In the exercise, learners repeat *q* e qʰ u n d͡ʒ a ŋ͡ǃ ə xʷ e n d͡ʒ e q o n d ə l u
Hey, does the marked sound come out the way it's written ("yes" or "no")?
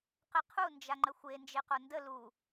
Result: yes